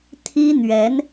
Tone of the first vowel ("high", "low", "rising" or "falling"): high